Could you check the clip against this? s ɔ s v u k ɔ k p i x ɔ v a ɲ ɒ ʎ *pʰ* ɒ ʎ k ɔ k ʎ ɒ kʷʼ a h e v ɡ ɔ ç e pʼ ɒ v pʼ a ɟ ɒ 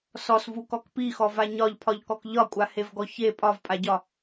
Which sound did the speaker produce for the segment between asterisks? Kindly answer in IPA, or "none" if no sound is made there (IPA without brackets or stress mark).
pʰ